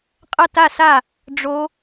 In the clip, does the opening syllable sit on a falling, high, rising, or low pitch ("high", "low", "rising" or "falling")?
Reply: falling